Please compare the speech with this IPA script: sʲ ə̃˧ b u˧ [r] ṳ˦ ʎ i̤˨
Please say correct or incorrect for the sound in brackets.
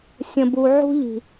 incorrect